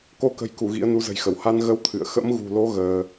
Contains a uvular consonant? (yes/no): no